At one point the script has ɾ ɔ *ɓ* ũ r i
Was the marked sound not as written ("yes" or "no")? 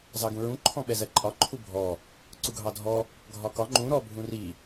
yes